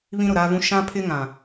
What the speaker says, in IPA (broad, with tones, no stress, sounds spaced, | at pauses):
β ĩ˦ ɾ ʊ˨ ɾ aː˦ v ũ˦ ʃ ã˦ pʰ ɪ˦ ŋ ã˨